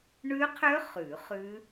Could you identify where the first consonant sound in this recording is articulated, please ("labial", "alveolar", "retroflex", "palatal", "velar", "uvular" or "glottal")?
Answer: retroflex